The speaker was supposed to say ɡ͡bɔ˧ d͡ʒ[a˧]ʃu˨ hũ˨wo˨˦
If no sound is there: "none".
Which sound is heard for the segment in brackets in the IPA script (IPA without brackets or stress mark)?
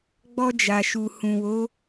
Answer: a˨